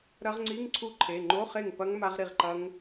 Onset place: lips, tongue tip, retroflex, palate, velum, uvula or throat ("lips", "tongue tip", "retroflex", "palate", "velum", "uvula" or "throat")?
tongue tip